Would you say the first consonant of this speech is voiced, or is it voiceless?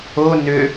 voiced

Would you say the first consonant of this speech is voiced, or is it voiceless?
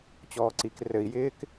voiceless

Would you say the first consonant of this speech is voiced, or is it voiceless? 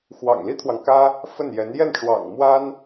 voiceless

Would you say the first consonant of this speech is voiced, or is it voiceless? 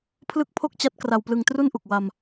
voiceless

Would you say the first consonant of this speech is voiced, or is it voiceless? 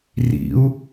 voiced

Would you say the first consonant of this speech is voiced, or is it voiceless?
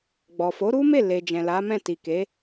voiced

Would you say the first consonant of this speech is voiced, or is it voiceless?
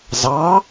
voiced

